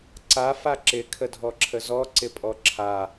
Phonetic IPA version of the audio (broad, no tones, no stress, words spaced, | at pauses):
ǀa faǁɪ kʰədʱɔǁʰəzɔ ǀɪpʼɔǁʰa